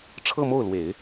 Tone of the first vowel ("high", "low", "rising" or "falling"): falling